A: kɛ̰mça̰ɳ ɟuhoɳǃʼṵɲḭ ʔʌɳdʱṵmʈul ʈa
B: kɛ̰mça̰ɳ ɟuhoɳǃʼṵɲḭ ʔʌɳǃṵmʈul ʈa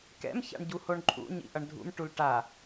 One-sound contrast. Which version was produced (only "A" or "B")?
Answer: A